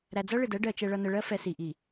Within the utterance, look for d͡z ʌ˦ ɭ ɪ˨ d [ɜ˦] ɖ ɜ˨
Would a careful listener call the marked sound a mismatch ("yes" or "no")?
no